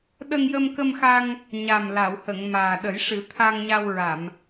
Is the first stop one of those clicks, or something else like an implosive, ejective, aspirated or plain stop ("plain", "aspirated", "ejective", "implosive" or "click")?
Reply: implosive